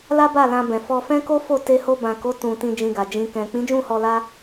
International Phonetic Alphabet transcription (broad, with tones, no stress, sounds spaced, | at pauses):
l a˦ b a˦˨ l ã˧ b ɛ̃˨ f ɔ˧ f ɛ̃˦ k o˦ f o˦˨ t e˧ h o˧ b ã˨ k o˨˦ t ũ˧ t ĩ˧ d͡ʒ ĩ˧ ɡ a˨ d͡ʒ ĩ˨ k ɛ̃˨ k͡p ĩ˨˦ d͡ʒ ũ˦˨ h ɔ˧ l a˦